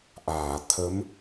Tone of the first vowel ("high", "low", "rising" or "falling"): low